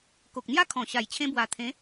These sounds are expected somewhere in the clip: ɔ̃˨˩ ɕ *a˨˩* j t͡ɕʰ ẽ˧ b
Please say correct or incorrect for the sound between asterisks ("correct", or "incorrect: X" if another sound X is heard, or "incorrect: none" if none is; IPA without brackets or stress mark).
correct